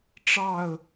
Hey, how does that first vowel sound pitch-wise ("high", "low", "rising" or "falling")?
falling